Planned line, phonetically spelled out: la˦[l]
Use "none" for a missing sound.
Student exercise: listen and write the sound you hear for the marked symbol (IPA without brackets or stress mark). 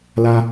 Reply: none